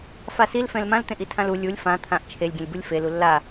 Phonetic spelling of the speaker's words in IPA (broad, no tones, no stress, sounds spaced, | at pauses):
f a s i l f ɛ̃ l m ã l t̪ ẽ ʔ i tʰ ã l u lʲ u lʲ f ã t̪ʰ ã ʔ t͡ʃʰ e lʲ ɡʲ ẽ lʲ b u lʲ f e l u lː a